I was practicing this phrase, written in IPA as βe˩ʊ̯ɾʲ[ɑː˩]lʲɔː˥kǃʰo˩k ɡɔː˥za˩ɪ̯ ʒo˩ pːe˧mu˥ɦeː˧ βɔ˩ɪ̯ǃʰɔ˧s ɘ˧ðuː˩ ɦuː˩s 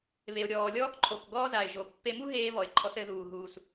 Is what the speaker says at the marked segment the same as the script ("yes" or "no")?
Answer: no